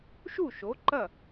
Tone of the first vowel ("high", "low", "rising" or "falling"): falling